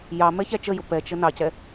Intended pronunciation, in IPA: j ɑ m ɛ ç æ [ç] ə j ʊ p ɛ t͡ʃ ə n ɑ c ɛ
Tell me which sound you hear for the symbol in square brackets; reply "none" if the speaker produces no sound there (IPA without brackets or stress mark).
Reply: t͡ʃ